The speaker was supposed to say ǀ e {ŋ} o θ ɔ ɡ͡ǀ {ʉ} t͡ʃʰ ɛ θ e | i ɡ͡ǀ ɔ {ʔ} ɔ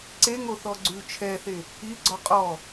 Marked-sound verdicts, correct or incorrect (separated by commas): correct, correct, incorrect